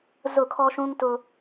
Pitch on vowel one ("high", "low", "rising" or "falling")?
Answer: falling